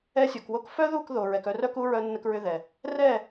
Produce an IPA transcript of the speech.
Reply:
ɛ˧sʲo˨kwo˧k fœ˦ðu˦˨kðo˨ɹɛ˨k œ˧rœ˦ku˦ ɹœ˧nːə˧kɹʏ˧ ðɛ˨ | rɛ˦˨

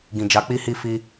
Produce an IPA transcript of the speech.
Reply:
ɡĩ˨d͡ʒa˨˦k͡pi˦hi˦˨ fi˧

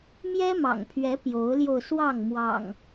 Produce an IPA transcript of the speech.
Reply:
mjɛ˦mɑ̰˨˩ŋpʰɥɛ˨˦ pjo˨˦ʊ̯ljo˧ʊ̯swɑ˥˨ŋ mwɑ̰˨˩ŋ

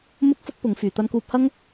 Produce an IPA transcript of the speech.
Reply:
mʊ˥k̚fʊ˥k̚pʊ˨˧ŋfyː˨ t̪ɐ˧nkuː˧p̚hɐ˥ŋ

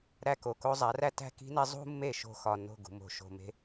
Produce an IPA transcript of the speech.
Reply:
ɾæ˧ko˨ko˧ zˤæ˨˦ræ˦ tæ̤˦ki̤˦ne˦ zˤṳ˦mːe˦˨ ʃo̤˦xɒ˧ no̤˦˨ɡṳ˨mo̤˨ ʃo̤˧me̤˦

